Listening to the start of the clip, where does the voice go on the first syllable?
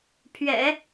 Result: low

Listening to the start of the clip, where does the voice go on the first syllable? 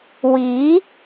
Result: rising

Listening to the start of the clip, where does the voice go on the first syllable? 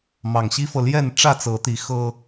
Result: low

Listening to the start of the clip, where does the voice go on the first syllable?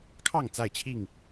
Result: falling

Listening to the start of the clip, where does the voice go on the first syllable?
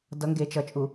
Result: rising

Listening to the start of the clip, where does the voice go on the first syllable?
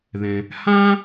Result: low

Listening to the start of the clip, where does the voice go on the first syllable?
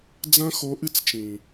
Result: high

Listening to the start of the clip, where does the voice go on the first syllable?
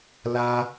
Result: high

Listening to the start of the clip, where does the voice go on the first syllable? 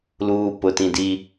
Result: low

